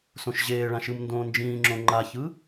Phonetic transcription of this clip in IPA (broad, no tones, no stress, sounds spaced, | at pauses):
s õ ʃ ʑ eː ɭ ã ʃ ɯ m n d õː n d͡ʒ ĩː ŋ͡ǁ õ ŋ͡ǃ a ç ɯ